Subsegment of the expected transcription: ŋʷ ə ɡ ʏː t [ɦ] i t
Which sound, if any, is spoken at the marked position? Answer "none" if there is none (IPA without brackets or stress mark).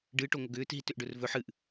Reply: ɦ